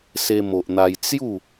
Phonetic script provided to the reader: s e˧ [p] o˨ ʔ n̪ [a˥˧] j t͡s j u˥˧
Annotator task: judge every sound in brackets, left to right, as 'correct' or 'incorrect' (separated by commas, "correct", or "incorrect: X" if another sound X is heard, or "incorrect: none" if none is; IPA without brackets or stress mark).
incorrect: m, incorrect: a˧